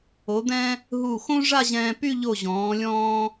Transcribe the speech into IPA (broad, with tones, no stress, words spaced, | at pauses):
o˩˧d̪ɛ̃˧ | ɦu˧˩xõ˥ ʐa˥˧ʑɛ̃ː˧py˥˧ ʎo˧˩ʑɔ̃ː˩˧lʲɔ̃ː˧